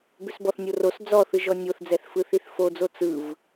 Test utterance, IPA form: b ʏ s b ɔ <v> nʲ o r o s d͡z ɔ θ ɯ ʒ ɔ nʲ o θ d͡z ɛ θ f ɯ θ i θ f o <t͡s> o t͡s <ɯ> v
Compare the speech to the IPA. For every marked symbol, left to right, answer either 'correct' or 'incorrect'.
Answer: incorrect: θ, incorrect: d͡z, correct

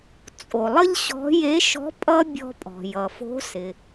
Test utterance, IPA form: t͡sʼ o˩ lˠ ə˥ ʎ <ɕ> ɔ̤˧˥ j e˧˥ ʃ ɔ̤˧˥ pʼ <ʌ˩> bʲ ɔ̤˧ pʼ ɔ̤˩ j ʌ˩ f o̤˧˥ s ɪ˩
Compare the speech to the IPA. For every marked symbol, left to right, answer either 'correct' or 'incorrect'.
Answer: correct, incorrect: ʌ˥

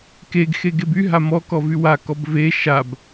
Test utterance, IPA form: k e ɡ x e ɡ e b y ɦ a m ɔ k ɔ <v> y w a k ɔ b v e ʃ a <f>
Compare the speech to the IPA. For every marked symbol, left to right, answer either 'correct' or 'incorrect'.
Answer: correct, incorrect: b

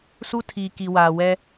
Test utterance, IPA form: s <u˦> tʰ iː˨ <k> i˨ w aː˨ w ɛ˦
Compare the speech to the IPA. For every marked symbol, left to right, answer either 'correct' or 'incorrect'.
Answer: correct, correct

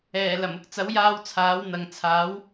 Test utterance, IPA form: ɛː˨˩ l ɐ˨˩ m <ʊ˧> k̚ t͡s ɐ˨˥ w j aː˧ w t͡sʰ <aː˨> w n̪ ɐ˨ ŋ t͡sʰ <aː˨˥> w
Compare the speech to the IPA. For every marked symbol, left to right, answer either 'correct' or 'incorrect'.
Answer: incorrect: ʊ˨, incorrect: aː˨˥, correct

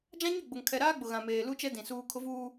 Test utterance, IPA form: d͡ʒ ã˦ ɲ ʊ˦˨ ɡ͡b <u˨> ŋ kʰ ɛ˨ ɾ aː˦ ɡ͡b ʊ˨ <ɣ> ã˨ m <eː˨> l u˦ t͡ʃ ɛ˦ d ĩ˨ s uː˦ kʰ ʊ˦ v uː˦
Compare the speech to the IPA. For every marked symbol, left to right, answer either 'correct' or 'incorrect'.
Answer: incorrect: ʊ˨, correct, correct

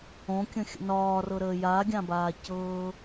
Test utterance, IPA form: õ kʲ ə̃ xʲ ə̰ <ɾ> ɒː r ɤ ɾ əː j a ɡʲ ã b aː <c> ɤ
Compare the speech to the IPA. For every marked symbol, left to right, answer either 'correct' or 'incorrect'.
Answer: incorrect: n, correct

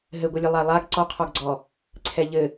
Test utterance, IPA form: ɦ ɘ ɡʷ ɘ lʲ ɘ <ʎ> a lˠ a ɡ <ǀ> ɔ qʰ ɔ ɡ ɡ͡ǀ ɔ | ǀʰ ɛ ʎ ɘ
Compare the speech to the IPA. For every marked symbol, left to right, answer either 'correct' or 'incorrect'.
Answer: incorrect: lˠ, correct

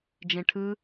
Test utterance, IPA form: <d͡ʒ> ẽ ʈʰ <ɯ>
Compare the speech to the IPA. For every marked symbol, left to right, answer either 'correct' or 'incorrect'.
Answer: correct, correct

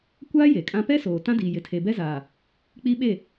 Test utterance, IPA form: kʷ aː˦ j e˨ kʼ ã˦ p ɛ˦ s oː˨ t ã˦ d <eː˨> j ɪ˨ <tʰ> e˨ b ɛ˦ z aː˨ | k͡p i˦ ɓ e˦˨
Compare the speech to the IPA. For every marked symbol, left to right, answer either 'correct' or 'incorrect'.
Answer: incorrect: iː˨, correct

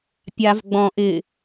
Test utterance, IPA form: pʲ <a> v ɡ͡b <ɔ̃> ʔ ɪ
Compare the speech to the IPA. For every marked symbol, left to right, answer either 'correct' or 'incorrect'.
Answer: correct, correct

